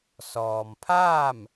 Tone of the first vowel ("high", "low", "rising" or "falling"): low